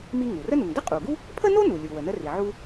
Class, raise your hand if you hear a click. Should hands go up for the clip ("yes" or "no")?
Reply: no